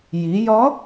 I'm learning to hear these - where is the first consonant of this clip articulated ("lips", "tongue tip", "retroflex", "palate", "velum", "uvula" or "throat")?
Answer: palate